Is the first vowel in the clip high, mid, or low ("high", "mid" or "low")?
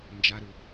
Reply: low